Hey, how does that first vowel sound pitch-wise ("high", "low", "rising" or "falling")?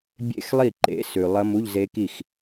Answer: falling